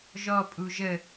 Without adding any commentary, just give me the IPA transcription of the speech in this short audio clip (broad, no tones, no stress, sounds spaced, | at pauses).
ʒ ɔ pʼ u ʒ ə